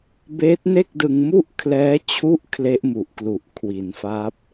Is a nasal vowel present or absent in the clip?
absent